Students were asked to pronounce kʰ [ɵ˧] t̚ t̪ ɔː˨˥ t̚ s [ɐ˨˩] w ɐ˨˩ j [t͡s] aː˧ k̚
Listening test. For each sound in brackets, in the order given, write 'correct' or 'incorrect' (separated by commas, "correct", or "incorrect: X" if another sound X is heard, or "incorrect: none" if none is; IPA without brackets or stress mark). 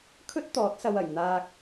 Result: incorrect: ɵ˥, incorrect: ɐ˨, incorrect: n̪